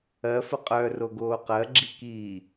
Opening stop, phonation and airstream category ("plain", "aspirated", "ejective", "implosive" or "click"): ejective